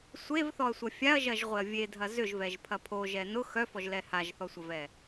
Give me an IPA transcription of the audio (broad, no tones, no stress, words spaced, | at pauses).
sʷevθɔɐ̯sʷɐ fʲaɐ̯ʒɐʒʁʷeɐ̯ vʲedʱɐ zʏʒvɛʒpʰɐ pʰoʒɛ nʊ xœfɔʒlɛ haʒθɔsʷɐvɛ